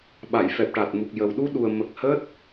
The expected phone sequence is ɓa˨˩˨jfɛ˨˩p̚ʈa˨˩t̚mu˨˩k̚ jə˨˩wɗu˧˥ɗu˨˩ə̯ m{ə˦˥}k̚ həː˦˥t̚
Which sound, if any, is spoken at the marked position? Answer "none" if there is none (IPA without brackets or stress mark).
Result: ə˨˩